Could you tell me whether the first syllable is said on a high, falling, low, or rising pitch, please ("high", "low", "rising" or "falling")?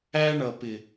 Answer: high